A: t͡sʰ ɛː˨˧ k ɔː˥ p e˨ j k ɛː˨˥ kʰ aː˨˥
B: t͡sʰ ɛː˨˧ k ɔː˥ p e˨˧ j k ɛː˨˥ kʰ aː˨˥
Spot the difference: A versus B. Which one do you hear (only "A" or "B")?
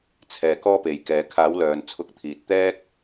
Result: A